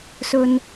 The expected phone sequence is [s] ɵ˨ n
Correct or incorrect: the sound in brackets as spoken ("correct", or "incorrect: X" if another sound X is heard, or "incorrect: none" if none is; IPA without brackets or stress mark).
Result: correct